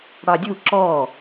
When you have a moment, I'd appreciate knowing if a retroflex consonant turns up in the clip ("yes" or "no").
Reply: yes